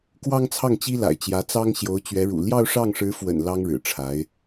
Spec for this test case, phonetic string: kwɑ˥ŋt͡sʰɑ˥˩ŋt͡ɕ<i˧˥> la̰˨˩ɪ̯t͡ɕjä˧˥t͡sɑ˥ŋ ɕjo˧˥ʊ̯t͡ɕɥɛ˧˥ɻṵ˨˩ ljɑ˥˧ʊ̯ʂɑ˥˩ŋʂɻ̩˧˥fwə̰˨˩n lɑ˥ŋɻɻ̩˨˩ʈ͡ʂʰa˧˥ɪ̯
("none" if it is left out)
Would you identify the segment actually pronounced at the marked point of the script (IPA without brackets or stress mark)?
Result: i˥